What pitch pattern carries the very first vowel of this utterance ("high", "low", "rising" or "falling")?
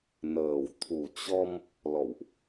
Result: low